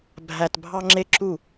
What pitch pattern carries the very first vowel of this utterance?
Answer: low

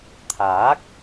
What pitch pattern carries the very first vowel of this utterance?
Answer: rising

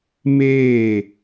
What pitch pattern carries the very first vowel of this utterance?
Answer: falling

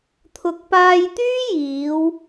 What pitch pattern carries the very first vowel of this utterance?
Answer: low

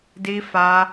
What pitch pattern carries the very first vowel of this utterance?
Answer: high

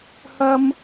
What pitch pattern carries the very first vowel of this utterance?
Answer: high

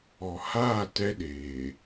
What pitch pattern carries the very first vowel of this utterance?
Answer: low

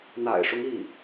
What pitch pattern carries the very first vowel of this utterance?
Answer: low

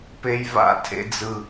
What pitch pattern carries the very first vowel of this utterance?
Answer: high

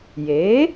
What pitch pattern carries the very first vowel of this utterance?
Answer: rising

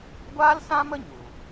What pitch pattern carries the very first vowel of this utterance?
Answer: high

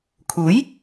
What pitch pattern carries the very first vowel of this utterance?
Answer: rising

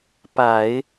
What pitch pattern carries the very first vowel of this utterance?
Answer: low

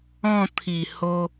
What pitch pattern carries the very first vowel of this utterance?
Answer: falling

